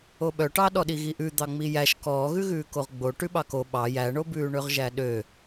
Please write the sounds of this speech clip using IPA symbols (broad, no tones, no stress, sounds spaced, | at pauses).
o ɓ œ ʈ ɑ ɗ ɔ ɗ i ɣ i ʔ ʉ d̪ ɑ ŋ͡m i j æ ʃ k ɔː ɣ ʉ ɣ ʉː k o ʁ ɡ͡b o ʈ ʉ ɓ ɑ k o ɓ ɑ j æ ɳ o b ʉː ɳ ø ʁ ʒ æ ɗ ø